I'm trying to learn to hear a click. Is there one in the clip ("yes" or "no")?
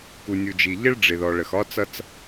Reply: no